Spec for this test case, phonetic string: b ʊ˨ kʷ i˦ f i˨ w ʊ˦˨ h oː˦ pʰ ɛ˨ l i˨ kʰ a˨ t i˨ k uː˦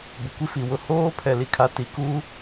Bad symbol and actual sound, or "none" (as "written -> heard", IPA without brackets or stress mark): none